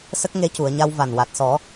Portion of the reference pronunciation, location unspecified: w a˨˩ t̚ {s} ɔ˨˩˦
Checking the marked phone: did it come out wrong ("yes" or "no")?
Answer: no